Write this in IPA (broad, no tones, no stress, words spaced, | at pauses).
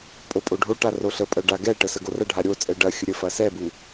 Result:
pʼopʼoɖʱoʈa roɬəpʼɐ ɖaɡɛʈə səɡorɐɖʱa ɾʲot͡sʼɛ ɖɐ xʲəɾʲəfɐ sɛbu